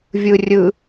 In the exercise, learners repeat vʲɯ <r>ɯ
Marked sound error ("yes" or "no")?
yes